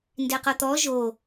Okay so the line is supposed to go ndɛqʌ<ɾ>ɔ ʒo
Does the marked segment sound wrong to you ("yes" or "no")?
yes